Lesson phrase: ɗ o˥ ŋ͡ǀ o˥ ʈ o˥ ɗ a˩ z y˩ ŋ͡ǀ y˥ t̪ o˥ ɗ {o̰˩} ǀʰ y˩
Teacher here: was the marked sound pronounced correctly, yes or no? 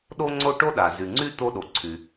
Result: no